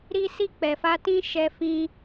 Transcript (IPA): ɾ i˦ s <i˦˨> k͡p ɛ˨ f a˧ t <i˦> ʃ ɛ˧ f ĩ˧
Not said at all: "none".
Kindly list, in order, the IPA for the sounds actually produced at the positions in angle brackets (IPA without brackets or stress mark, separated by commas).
i˦˨, ĩ˦